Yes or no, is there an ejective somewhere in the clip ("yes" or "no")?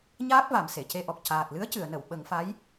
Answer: no